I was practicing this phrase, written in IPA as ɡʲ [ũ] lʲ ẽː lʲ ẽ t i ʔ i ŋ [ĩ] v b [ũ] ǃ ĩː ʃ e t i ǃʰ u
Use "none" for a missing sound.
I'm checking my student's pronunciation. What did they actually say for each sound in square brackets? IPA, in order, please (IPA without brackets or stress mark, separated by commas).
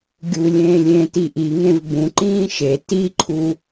u, ẽ, ũ